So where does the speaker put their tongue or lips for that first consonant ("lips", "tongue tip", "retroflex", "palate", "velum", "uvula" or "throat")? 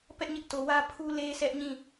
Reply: lips